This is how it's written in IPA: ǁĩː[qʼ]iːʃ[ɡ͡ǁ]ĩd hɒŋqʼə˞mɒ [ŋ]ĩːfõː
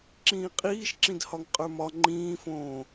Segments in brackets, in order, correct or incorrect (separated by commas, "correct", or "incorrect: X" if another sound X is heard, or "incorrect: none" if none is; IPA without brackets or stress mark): correct, incorrect: ǁ, incorrect: ŋ͡ǃ